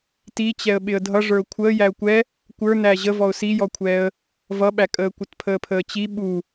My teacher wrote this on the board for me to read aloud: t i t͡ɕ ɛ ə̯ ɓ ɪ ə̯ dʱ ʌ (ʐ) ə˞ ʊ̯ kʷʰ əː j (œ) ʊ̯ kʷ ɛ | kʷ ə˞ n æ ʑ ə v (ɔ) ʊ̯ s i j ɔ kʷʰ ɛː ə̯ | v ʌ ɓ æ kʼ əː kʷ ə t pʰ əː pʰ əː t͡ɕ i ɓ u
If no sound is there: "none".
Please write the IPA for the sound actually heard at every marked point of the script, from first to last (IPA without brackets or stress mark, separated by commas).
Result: ʐ, æ, ɔ